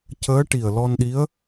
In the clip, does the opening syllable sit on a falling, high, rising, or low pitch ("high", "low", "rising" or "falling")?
rising